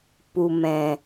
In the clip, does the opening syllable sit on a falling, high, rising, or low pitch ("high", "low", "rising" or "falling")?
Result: low